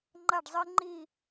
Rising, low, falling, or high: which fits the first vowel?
falling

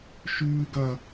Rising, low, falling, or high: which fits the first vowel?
high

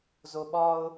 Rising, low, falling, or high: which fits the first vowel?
low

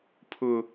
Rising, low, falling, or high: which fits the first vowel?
high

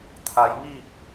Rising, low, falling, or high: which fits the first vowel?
low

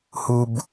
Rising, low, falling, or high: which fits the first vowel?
low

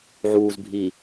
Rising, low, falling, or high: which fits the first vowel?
low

